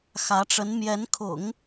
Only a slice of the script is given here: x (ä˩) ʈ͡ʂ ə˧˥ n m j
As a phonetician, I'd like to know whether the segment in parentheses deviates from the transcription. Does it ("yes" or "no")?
yes